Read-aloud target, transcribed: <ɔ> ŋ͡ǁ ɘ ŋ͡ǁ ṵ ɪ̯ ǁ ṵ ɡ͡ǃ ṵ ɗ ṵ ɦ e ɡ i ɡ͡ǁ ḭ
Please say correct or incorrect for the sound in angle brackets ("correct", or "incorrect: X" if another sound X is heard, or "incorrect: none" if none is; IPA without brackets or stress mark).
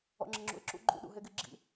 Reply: incorrect: ɔ̰